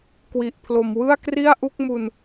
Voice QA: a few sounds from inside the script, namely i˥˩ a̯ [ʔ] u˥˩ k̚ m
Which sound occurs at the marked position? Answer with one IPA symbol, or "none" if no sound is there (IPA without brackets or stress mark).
ʔ